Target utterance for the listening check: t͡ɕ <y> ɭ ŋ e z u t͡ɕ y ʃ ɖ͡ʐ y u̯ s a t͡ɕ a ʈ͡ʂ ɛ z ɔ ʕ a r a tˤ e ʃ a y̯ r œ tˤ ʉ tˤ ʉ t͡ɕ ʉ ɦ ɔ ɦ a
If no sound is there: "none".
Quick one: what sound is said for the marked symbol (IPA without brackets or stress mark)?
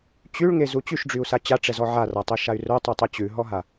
y